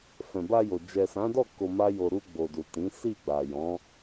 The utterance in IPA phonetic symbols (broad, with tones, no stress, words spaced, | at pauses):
fɛ̃˨ba˧jo˨ d͡ʒɛ˨sã˨˦dɔ˦˨ ko˧ma˦jo˧ ɾu˧ɡ͡bo˨du˨ tĩ˨˦ si˦˨ɡ͡ba˨ jɔ̃˨˦